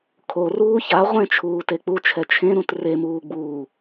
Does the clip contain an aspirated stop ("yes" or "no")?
yes